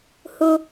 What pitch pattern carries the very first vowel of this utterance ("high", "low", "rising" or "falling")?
high